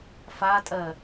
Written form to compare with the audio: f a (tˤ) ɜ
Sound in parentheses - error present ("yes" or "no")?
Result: yes